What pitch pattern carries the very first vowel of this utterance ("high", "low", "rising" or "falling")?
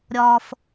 high